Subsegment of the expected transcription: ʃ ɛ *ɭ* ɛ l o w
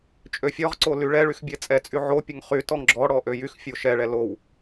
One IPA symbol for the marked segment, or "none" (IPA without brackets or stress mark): ɭ